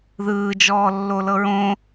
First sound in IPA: ð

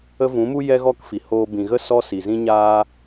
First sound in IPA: ə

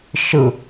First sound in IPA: ʃ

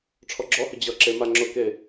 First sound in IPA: ʈ͡ʂʰ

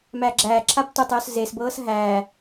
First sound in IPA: m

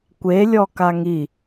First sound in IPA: kʷ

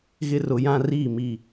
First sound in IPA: ɣ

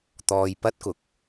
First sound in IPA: t̪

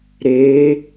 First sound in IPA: ɾ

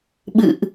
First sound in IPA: ɓ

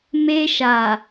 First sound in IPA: m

